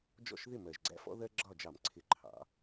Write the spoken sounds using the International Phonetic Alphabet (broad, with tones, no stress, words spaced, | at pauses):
d͡ʒɔ̰˥˩ʃ ðɪ˥˩mɜ˨˩ʒɡ͡ǀæ̰˦fɔ̰˦ ðɜ˦ ɡ͡ǁɒ˥˩d͡ʒɑ˧˩˧mǀʰɪ˧˩˧ ǃʰɑ̰˩˧